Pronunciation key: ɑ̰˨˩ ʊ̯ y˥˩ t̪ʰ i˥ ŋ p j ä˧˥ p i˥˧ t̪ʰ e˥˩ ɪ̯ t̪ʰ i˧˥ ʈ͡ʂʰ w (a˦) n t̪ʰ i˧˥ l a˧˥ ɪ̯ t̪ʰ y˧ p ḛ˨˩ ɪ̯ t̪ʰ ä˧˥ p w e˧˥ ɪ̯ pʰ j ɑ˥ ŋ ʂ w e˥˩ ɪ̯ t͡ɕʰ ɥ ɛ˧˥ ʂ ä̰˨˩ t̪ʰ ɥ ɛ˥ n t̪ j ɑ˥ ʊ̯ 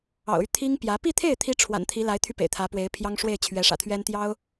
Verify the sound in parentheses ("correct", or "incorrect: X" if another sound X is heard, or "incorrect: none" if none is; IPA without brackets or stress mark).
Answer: incorrect: a̰˨˩